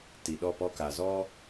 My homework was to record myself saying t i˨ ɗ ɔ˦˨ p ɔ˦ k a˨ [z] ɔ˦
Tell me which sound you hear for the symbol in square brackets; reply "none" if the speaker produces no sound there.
z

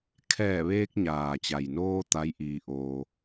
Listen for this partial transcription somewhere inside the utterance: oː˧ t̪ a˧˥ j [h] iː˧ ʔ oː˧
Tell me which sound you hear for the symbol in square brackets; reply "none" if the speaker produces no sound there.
ʔ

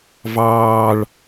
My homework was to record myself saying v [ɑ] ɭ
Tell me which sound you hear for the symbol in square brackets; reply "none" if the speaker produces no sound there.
ɑː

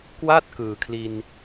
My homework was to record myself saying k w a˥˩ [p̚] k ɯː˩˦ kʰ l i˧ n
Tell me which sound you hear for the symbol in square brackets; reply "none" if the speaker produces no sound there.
t̚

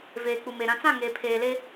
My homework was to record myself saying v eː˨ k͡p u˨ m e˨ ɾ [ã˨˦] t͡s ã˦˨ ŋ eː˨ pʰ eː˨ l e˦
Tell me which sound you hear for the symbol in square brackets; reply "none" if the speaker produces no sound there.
ã˨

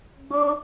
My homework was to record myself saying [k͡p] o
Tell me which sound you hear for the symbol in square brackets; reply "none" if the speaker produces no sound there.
ɡ͡b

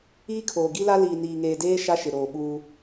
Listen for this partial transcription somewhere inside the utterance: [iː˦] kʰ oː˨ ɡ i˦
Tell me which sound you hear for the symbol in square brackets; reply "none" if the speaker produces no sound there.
iː˦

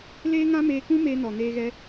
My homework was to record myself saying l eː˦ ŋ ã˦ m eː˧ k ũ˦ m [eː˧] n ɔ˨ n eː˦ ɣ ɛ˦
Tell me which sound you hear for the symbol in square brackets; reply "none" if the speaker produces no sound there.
eː˦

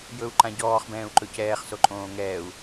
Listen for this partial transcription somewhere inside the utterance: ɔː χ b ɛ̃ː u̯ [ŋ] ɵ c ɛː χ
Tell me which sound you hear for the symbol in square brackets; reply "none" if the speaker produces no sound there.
ǃ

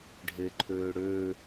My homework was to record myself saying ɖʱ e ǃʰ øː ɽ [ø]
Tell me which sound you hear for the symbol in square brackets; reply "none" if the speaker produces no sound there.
ø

